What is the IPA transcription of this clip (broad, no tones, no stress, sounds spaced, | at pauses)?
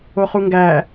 o χ u ŋ ɡ æː